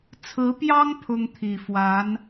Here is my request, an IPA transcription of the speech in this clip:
t͡sʰ ɹ̩˧˥ p j ɑ˥ ŋ pʰ ʊ˥ ŋ t̪ʰ i˨˩ f w a˧˥ n

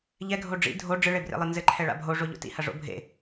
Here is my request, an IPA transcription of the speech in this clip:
ʎ ɛ ɡʱ o ɖ͡ʐ ḭ dʱ o ɖ͡ʐ ɨ ɭ e b r ḛ lˠ ɘ n z ɘ ǃʰ ɛ ɭ a̰ bʱ o ʐ o ʎ o̰ t ḭ h ɐ ʐ o̰ bʱ ḛ

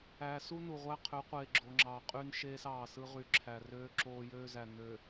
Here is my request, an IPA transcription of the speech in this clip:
æː˨ s u˦ n u˨ ʁʷ æ˦ qʰ ø˨˦ qʷ eː˨ ɡ͡ǁ o˨ ŋ͡ǁ ɑː˨ qʼ y˦ n ʃ eː˦ s ɑː˨ s ɯ˦ ʁ y˨ ǁʰ æ˨ r øː˦ ǁ oː˦ j øː˦ z æ˨ n ø˨

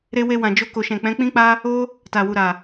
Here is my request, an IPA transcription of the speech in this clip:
ɾ e˧ w e˧ w ã˨ d͡ʒ o˧ k o˨ ʃ ɛ̃˨ k͡p ɛ̃˨˦ k͡p ĩ˦ k͡p a˦ | o˦ | t a˨ w u˨ ɾ a˨

